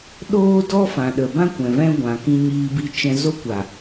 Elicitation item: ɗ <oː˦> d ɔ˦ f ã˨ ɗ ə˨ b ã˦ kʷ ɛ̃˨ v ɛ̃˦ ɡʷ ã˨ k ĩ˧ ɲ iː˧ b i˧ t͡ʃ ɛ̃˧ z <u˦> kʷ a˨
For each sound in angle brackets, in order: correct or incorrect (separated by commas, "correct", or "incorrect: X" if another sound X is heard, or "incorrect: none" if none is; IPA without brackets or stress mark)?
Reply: correct, incorrect: o˦